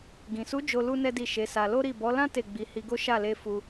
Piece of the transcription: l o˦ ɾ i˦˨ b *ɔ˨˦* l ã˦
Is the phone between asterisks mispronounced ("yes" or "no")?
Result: no